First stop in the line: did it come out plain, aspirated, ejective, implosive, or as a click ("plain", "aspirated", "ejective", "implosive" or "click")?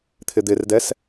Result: aspirated